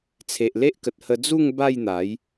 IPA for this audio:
t͡sʰ e˨ ʔ l e˦ ʔ k ə˨ t̚ h ə˧ d͡z u˥˧ ŋ b a˥˧ j n̪ a˨˦ j

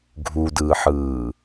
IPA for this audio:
ɡʱ u d ɯː ħ ɯː

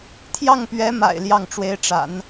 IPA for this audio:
t̪ʰ j ɑ˥˩ ŋ p ɥ ɛ˧˥ m a̰˨˩ ɪ̯ l j ɑ˥˩ ŋ ʈ͡ʂ w e˧˥ ɪ̯ ʈ͡ʂ a̰˨˩˦ n

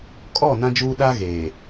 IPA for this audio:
kʼ ɔ˦˨ n ã˦ d͡ʒ uː˦ ɗ a˦ ɣ eː˨

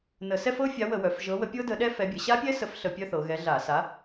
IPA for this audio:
n ə˧˩˧ s ɛ˥˧ f ɤ˦˥ fʲ a˨˥ w ə˧˩˧ w œ˩˧ f ʒ ɤ˨˥ w ə˨˥ pʲ ɤ˦˥ d ə˨˥ ɗ ɛ˦˥ f ɛ˨˥ bʲ ə˩˧ ɕ a˦˥ pʲ ɛ˦˥ s ə˨˥ f ɬ ə˧˩˧ pʲ œ˦˥ θ ɤ˩˧ ɣ ɛ˨˥ ɮ a˧˩˧ s a˨˥

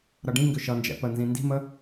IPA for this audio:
ɾ ʌ ɖ ĩ ŋ ɡ ʏ ʃ ʌ n d͡ʒ ɛ̰ p ə n z ĩ n d i̤ m ə

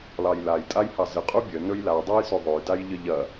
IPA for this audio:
l ɑ j l a j tʼ a j h ɑ z ə qʼ u bʲ ə n ɵ j l a dˤ a j s ɵ ðˤ ɵ j d a j ʎ ə ʎ ɐ

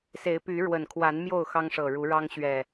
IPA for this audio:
s e˨˦ ɪ̯ p y˨˦ ɻ w ə˨˩ n kʰ w a˨˦ n m j o˥˨ ʊ̯ x ɑ˦ ŋ ʂ ɤ˨˩ ɻ u˨˦ ɻ ɑ˦ ŋ ɕ ɥ ɛ˨˩

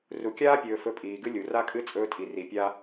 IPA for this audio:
r u˨ kʲ aː˦ pʲ ɵː˨ f ɵ˧ pʼ iː˨ ɡ ɨ˦ lʲ u˨ r a˦ kʼ ɨ˦ t͡sʼ ɵː˧ tʼ i˨ r i˨ pʲ a˦

